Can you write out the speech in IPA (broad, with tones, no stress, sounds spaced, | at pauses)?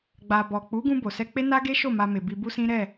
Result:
ɡ͡b a˨ b ɔ˨ k͡p u˨˦ ɡ ũ˧ b o˨ s ɛ˧ k͡p e˦ n a˦ ɡ e˦ ʃ o˦˨ m a˧ m e˨ b i˧ b u˦ s ĩ˦ ɾ ɛ˦˨